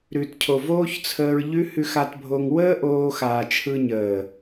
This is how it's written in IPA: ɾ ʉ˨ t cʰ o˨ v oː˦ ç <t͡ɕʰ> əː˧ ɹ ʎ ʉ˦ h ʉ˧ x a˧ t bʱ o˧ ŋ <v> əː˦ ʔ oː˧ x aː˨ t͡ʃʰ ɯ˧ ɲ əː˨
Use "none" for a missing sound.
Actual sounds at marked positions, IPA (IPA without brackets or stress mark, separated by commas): t͡sʰ, w